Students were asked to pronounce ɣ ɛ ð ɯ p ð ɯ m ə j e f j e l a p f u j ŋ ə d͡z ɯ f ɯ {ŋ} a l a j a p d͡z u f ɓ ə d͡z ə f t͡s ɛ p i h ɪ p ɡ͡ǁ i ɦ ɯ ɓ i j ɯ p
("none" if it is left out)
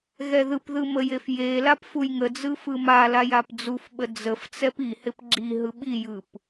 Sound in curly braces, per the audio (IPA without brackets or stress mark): m